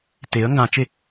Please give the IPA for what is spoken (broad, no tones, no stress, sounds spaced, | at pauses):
t e ə̯ ŋ ɡ ã t͡ʃ e